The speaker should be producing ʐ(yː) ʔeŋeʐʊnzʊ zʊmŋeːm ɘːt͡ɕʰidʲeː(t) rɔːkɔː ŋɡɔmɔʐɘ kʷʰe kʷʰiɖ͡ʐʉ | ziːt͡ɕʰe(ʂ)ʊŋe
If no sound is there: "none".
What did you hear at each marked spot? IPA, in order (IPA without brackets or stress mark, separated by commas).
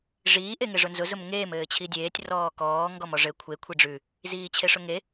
iː, tʲ, ʂ